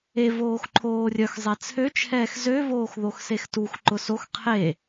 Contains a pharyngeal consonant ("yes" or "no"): no